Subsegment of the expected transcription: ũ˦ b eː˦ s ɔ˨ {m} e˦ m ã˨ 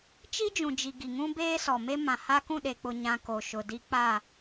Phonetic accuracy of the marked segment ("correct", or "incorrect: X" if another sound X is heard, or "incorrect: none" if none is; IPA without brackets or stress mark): correct